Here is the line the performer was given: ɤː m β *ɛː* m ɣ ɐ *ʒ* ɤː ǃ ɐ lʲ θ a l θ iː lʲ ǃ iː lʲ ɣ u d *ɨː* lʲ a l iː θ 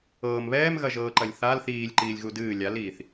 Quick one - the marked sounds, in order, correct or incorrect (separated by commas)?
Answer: correct, correct, correct